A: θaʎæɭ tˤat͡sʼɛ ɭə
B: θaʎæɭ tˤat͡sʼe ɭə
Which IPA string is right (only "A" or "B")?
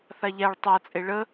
B